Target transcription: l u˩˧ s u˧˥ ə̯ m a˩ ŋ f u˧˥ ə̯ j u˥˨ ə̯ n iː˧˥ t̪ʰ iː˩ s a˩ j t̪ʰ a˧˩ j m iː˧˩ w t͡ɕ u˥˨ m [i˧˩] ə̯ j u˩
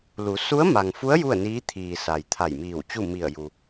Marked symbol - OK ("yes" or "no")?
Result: yes